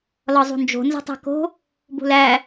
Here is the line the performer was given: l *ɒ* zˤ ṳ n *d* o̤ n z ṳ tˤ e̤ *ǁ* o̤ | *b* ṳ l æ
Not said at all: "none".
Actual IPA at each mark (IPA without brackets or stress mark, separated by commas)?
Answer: ɒ, d͡ʒ, k, b